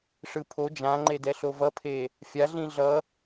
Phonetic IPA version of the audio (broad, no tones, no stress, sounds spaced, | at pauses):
ʂ ɯ pʰ o d͡ʒ ã ŋ͡ǃ e d ɛ ɬ o v ʌ pʰ e | fʲ a ɮ ĩ ɮ ʌ